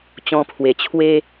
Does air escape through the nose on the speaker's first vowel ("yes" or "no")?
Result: yes